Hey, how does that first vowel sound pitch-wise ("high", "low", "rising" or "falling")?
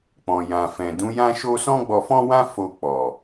low